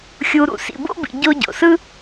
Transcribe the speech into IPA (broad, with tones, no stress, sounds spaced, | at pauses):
xʲ u˧ ɾ ṵ˩ s ḭ˧ b o̰˥ b ḭ˧ ɟ o˥ ɟ o̰˩ s ɯ˥